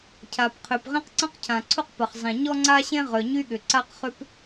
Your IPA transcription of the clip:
cʰ a˩ p qʰ ø˩ p ʁ ĩ˥ q ǀ ɐ̃˥ q cʰ ã˩ ǀʰ ʊ˥ q p ɐ˩ χ zˤ ẽ˩ ɲ ɔ˥ ŋ͡ǀ a˥ ɕ ẽ˥ ʁ œ˩ ɲ y˥ ɠ ʏ˩ ǀ a˥ q χ ʏ˥ p

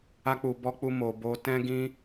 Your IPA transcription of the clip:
a˦ k͡p u˧ b ɔ˦ k͡p u˦ m o˧ b o˦ t ɛ̃˦ ɡ ĩ˦

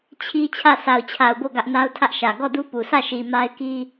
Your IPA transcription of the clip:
t͡ɕʰ i˦ t͡ɕʰ ä˦˨ sʰ a˨ ʊ̯ t͡ɕʰ a˨ ʊ̯ b o˦˨ ɡ ä˦ ʔ n a˦ ʊ̯ tʰ ä˦ ʔ ʃ ä˨ ɡ ɔ˦˨ d u˦ p u˨ sʰ ä˦˨ ʃ i˨ m a˦ ɪ̯ k i˦

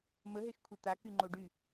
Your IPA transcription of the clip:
m ə ɦ e x kʷʰ e t̪ a k y ŋ͡ǃ o ɖ y

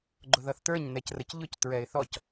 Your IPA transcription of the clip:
ɡ͡ǃ ʊ ð ʌ θ t ə˞ ɲ n ɛ c r ə c ʎ ʊ c t ɹ ɛ ɪ̯ θ ɔ c

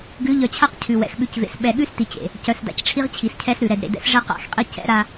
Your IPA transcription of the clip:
ɡ ʉ˨˦ ʎ œ˨ t͡ɕʰ a˦ q cʰ ʉ˨ w ɛ̰˨ x ɓ ʉ˨ c v ḛ˨ s ɓ ɛ˨ ɠ ʉ˦ s t i˨ t͡ɕ ḛ˨ | c œ˨ s d a̰˨ c ʈ͡ʂʰ i˦ ʁ t͡ɕʰ i˨ s cʰ ɛ˦ s ɾ ʉ˨ ɾ ɛ˨ d ɾ ḛ˨ d ɛ̰˦ s ʐ ɛ˦ q a̰˨˦ x qʼ i˦ c ɛ̰˦ ɾ a˦

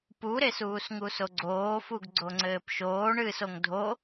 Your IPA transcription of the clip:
p u ɾ e s uː s ŋ u s o ɡ͡ǀ oː f u ɡ ɡ͡ǀ o ŋ͡ǀ ɘː p ʃ oː ɳ ɨː s o ŋ dʱ o

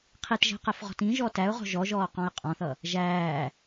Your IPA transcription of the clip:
qʰ i t ʒ ɛ̤ q ɛ f ʁ ɔ̤ t ĩ ʒ ɔ t æ ʊ̯ ʁ ɔ̤ ʒ ɔ ʒ ɔː q ɔ̃ ɪ̯ qʼ ɔ̃ θ ʌ | ʒ æː

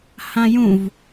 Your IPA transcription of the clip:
h ã j ũ v

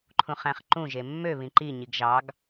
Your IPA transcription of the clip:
ǃʰ ũ χ æ̃ χ ǃ ũ ʒ e mː ø β ĩ ǃ i ɲ i ɡ ʒ ɑ ɡ

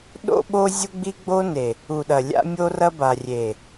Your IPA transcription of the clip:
ɗ o̰˦ ɓ o˦ zʲ u˦ ɡ͡b i˦ ɡ͡b o˦ n e˨ | u˨ ɗ ɐ˨ lʲ a̰˦ mʲ o˦ r ɐ˦ b a˨ rʲ e˨

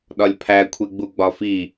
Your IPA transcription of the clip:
ɗ ɒ lʲ pʰ æ kʷʰ e ɡ͡b u ɡ͡b ɒ f i

